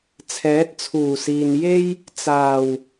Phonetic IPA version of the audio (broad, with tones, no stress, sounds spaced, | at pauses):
t͡sʰ ɛː˨˥ t̚ t͡sʰ uː˨˩ s iː˨ n j e˥ j | t͡s aː˨˩ w